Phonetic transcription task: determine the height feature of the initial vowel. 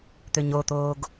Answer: mid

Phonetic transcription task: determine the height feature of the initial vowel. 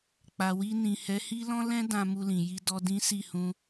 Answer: low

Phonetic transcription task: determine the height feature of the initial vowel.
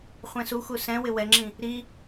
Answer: mid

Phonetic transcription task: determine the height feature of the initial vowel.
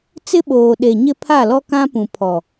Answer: high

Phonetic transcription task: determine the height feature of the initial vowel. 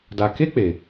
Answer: low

